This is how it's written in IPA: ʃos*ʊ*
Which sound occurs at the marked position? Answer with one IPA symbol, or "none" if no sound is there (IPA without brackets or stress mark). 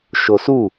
u